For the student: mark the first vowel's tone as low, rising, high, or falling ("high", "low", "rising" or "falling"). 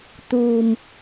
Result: low